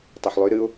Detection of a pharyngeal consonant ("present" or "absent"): present